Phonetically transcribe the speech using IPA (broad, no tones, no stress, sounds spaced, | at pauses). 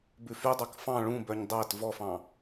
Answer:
b ʉ f y dˤ ɑ k f ɑ̃ ɭ ũ b œ ɲ dˤ æ t v ɔ f ɑ̃